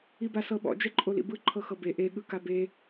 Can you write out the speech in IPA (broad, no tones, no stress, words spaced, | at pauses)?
ibasɤɓɔ̰ d͡ʒɛǃʼolḭbɯ ǃʰɤxɤbe ʔe ɠɯkabe